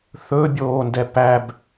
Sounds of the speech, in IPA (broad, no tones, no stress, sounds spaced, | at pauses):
θ ɵ bʲ oː n d ɛ p æ b